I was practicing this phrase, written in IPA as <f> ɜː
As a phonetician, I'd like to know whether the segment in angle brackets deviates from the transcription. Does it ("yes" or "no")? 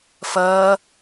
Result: no